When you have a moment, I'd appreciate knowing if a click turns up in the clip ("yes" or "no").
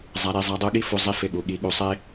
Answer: no